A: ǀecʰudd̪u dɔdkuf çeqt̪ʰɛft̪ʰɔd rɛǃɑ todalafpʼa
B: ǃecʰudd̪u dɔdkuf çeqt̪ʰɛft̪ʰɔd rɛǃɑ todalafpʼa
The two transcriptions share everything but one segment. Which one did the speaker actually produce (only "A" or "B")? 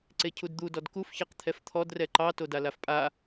A